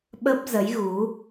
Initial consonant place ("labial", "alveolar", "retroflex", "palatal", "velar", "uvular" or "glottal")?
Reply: labial